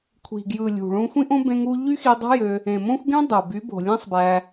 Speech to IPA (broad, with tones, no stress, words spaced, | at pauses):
kʷʰi̤˨ɡjɯ˨ lʲṳ˨ ɭũ˧ xʷĩ˦ʔõ˦ bẽ˧ŋu˧ ʎy˦xi˧dˤo̤˦jø˧ | ẽ˨mõ˦xʷɡẽ˦ dˤo˨ by˨˦bo̤˨lʲẽ˦sˤbæ˧